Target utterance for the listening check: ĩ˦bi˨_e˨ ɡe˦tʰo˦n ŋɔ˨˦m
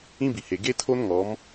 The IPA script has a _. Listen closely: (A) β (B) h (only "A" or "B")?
B